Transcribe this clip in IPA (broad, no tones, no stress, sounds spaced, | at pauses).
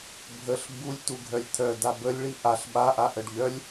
bʱ ə ɬ b u lʲ t u ɡʱ œ lʲ t̪ʰ œ d a b ə lʲ ɭ i ʔ a ɬ ɓ a ʔ a ʔ ə ɖ ʎ œ lʲ